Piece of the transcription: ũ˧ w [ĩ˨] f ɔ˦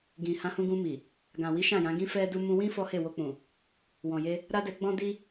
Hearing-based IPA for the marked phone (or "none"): ĩ˦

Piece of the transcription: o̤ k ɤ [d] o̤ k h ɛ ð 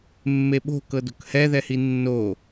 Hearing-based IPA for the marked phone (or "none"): d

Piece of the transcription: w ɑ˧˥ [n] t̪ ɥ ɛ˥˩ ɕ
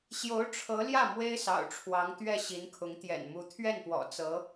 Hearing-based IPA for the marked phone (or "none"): ŋ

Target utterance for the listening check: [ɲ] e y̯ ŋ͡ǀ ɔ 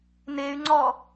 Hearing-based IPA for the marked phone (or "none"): n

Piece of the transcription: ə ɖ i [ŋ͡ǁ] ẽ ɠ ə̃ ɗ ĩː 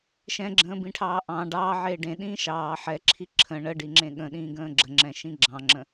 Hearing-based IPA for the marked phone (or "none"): ŋ͡ǁ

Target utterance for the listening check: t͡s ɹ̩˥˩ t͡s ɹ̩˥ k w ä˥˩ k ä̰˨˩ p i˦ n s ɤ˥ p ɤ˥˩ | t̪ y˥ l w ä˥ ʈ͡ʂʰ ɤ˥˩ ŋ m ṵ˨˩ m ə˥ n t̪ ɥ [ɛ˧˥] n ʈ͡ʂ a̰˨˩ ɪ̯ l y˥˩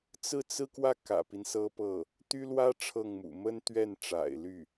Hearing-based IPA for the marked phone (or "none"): ɛ˥˩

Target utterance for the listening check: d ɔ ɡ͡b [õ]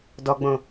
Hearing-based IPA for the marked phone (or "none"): õ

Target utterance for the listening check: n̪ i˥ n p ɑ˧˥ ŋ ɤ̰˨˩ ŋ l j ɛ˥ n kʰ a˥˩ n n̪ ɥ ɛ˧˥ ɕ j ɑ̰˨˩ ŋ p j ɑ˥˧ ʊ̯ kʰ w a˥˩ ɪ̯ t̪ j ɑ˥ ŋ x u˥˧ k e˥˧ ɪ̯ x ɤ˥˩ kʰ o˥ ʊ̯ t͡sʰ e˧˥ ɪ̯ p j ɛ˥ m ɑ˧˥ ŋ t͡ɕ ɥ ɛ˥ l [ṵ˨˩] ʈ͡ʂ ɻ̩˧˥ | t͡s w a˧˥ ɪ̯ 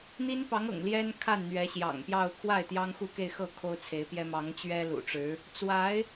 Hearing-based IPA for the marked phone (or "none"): ṵ˨˩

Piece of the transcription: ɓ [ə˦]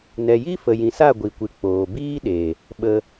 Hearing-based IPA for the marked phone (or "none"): ə˧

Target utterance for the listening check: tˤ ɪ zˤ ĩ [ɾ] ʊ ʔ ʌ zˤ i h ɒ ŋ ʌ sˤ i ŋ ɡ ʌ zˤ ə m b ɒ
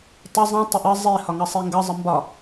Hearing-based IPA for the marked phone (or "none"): tˤ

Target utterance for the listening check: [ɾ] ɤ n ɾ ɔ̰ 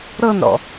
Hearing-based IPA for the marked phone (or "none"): ɾ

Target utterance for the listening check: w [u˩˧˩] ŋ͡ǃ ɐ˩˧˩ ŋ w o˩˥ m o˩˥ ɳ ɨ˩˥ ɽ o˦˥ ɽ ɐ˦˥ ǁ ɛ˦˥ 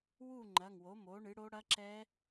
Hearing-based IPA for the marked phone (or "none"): u˥˨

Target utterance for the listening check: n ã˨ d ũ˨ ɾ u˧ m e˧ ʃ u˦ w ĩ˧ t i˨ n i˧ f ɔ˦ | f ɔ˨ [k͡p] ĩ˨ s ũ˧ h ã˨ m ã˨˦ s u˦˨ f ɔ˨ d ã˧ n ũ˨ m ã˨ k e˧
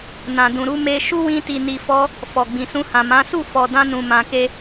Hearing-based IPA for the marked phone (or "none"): ɡ͡b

